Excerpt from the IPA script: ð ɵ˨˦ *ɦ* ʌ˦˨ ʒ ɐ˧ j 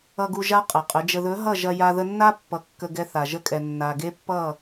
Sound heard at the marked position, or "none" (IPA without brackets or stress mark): ɦ